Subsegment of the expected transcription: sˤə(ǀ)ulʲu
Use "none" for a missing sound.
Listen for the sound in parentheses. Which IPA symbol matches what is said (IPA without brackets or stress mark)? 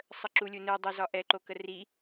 ǁ